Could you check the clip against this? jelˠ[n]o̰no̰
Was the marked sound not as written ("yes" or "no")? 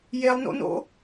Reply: no